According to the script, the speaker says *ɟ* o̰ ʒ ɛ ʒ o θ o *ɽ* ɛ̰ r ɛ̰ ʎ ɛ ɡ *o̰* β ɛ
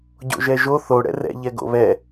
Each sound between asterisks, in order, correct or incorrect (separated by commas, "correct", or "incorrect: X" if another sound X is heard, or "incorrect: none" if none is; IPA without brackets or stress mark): correct, correct, correct